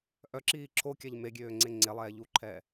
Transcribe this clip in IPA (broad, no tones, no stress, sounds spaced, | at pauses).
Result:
ʔ œ ǁ iː ǁʰ o kʲ a ʎ m e ɡʲ øː ŋ͡ǀ e ŋ͡ǀ e lˠ ɛː ʎ u ǃʰ ɛː